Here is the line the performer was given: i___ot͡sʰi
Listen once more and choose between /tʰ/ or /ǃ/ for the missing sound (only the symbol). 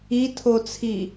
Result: tʰ